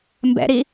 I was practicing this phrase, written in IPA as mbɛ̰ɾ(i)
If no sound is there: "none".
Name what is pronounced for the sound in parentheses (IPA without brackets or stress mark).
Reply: i